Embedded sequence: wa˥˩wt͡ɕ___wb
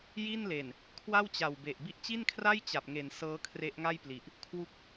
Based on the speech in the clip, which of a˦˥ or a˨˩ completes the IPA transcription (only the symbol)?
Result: a˨˩